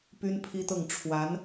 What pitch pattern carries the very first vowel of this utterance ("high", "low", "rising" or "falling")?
high